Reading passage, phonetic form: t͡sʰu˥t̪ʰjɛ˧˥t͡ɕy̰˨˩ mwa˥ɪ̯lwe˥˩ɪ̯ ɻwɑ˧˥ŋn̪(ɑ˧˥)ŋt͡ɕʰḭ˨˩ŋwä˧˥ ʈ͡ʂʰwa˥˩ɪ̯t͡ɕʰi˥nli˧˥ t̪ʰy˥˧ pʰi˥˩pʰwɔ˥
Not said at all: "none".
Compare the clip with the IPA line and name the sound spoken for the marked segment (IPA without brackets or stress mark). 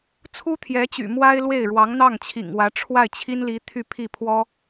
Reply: ɑ˥˩